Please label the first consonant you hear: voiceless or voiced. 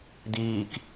voiced